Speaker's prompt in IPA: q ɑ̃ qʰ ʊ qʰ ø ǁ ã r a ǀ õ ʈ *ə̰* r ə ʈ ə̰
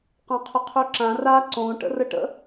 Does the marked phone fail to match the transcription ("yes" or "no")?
no